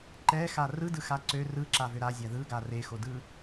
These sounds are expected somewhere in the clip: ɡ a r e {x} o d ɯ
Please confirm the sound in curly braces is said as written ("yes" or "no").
yes